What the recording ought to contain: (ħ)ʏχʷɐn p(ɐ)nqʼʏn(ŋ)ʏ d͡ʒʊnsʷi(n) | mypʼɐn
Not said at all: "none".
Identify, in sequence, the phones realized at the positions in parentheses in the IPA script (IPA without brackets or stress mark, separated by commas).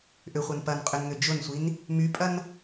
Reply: ʔ, ɐ, ŋ, n